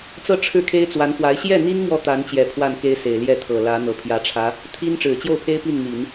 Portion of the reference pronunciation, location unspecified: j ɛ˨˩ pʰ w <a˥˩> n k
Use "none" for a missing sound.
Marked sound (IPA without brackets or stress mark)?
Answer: a˥˩